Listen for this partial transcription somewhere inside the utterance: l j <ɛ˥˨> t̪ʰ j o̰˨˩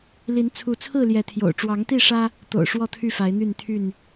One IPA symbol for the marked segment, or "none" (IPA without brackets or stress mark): ɛ˨˦